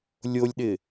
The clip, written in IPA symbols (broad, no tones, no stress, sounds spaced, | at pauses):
lʲ o lʲ ɗ ɪ